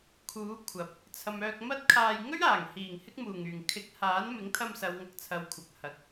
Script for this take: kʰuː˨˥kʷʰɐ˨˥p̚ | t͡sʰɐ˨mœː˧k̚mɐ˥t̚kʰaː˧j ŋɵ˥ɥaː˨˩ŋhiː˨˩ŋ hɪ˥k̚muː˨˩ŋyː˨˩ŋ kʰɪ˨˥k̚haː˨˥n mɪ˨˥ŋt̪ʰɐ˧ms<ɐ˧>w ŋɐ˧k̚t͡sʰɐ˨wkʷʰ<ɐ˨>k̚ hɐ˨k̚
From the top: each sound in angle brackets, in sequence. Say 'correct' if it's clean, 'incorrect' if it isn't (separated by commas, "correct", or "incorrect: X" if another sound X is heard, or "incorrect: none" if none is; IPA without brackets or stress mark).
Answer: incorrect: ɐ˨, correct